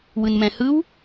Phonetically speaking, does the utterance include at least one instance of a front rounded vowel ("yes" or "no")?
no